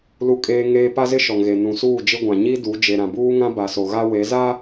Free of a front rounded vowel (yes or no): yes